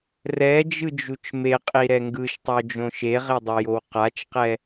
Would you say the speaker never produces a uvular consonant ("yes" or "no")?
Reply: no